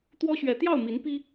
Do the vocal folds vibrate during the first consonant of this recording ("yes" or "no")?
no